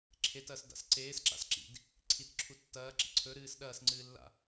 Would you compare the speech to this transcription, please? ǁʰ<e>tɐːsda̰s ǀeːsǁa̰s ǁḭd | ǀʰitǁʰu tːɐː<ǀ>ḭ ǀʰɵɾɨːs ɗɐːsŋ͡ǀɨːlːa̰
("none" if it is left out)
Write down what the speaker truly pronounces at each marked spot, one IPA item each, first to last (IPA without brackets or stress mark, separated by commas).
e, ǁ